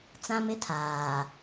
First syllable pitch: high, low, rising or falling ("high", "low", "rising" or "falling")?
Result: high